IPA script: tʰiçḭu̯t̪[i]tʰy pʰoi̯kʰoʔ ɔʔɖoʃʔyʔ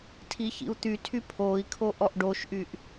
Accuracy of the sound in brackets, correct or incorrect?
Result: incorrect